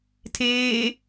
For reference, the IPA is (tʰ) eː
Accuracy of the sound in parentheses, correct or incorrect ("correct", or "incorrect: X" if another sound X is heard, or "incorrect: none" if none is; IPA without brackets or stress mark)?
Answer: correct